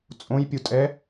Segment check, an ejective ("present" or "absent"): present